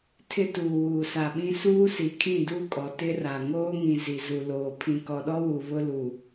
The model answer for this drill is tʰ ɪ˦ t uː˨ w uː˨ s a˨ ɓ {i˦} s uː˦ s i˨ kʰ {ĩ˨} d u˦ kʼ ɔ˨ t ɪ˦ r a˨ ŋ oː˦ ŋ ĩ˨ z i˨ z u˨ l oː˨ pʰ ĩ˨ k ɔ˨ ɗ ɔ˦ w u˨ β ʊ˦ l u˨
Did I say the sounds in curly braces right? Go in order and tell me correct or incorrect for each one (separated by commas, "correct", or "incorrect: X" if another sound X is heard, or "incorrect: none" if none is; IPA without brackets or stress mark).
incorrect: ĩ˦, incorrect: ĩ˦˨